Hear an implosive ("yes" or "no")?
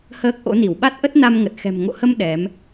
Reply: yes